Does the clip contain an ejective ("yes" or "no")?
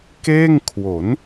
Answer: no